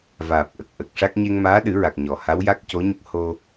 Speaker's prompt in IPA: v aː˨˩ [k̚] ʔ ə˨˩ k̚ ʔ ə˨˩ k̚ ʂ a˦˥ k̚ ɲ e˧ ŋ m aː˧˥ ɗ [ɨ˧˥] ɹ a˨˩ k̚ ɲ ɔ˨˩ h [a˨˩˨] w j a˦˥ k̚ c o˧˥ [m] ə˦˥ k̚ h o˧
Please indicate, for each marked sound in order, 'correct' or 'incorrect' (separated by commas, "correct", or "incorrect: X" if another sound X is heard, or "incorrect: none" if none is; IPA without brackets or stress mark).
incorrect: p̚, incorrect: ɨ˨˩˦, incorrect: a˧˥, incorrect: ɲ